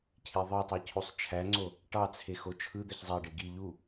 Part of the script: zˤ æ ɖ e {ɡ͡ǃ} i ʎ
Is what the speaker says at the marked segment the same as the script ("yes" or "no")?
no